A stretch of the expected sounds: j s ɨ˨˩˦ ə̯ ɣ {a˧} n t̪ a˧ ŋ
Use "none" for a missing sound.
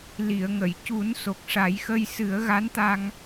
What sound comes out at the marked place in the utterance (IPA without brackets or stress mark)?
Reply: a˧˥